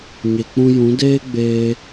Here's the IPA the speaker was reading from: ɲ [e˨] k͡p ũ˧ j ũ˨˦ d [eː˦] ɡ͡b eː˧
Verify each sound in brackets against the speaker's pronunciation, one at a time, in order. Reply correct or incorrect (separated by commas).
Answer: correct, correct